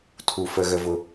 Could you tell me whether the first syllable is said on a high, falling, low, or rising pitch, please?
low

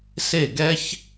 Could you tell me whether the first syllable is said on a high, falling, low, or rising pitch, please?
falling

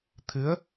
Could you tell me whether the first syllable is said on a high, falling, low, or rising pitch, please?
rising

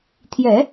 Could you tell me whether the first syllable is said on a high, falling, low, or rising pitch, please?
low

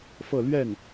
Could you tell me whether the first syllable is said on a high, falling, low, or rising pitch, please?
falling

